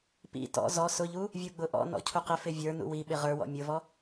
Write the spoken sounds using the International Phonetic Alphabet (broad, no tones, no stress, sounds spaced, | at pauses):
p ḭ t ɔ̰ z ɔ s ʊ ʎ u | vʲ u ɡ͡b ʊ ʔ ɔ̰ n ɔ̰ cʰ u q ɪ f ɪ vʲ ə˞ n ṵ w i ɓ ɪ ʁ ə˞ w ɔ̰ mʲ ʊ v ɔ